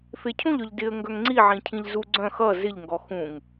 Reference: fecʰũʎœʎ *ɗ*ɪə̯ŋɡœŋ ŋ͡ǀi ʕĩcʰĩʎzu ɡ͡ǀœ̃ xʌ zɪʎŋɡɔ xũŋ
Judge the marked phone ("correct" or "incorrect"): incorrect